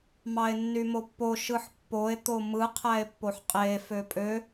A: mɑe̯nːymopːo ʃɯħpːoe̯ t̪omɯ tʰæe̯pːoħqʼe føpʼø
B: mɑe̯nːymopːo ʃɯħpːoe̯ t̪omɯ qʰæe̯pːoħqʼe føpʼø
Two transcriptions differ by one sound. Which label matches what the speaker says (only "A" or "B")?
B